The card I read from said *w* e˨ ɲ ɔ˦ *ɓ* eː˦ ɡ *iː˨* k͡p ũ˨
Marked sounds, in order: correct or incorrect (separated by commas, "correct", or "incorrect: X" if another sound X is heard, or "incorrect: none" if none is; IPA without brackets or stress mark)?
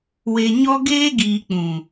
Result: correct, incorrect: ɡ, correct